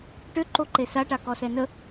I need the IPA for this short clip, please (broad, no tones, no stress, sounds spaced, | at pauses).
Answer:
ʈ ø ǃ o ǃ e s a ʈ a k ɔ s ɛ n ə